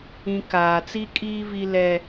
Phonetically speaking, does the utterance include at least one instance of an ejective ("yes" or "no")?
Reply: yes